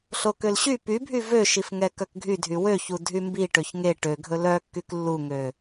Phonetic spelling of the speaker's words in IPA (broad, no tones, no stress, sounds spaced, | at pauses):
ɬ o k ø l ɕ y p y bʱ y v ø ʃ i f ŋ ɛ k œ k ɡʱ y dʱ y w ø ç u dʱ y m b i ʈ ø ç ŋ e ʈ ø ɡʱ ɵ l œ kː y k lː u ŋ ø